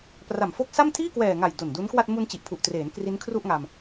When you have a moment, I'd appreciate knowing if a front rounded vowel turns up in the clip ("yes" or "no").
no